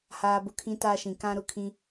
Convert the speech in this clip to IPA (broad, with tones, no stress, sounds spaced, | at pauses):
h aː˦ b ʊ˦ kʰ ĩ˦ t aː˦ ʃ ĩ˨˦ k ã˦ ɾ ʊ˦ kʰ ĩ˦